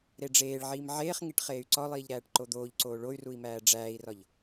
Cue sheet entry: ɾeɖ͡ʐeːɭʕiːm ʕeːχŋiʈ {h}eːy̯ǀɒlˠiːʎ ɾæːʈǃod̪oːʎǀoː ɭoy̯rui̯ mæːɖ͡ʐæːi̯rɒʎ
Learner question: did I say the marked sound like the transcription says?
no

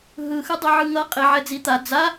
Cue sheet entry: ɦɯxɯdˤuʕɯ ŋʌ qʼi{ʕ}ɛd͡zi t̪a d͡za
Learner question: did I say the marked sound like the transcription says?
yes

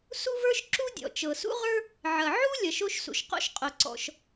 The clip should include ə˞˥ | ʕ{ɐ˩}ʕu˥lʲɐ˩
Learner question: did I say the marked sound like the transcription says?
yes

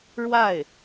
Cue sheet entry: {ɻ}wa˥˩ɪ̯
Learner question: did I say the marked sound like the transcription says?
yes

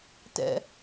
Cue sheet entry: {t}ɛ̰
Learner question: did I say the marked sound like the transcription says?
yes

